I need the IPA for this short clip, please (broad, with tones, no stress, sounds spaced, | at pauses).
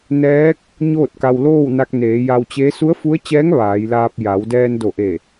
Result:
n ɛː˧˥ k̚ | ɲ oː˥˨ t̚ k a˧ w l oː˥˨ w n a˧ k̚ n eː˩˧ j a˧ w t͡ɕ e˧˥ s u˧˥ ə̯ f u˧˥ ə̯ t͡ɕ ɛː˧˥ ŋ ʋ aː˩˧ j l aː˧ p̚ j a˩˧ w d ɛː˧ n d o˧˩ ʔ e˧˩